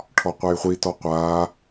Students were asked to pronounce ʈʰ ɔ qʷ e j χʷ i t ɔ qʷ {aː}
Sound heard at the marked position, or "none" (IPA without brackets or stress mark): aː